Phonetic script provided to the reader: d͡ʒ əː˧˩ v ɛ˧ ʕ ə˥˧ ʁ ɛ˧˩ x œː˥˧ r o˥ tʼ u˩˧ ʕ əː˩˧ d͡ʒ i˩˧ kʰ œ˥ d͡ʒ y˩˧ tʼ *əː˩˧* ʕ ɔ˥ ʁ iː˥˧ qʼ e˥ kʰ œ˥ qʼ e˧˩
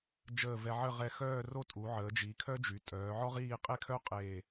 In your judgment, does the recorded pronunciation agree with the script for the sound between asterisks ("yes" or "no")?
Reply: no